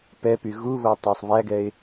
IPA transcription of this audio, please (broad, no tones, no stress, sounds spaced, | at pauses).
p ɛ p y ɣ u β o tˤ æ sˤ β æ ɡ ɛ ɪ̯